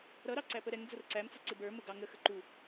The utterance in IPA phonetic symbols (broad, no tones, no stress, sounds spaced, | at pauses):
ɾ ʌ ɾ ɑ ǀ æ p ə ɾ ɛ ŋ d͡z ʊ r ǀ æ m t͡s ʊ ǀ ɪ b ə˞ m ʊ ɡ ɑ ŋ ə x ə ǃ u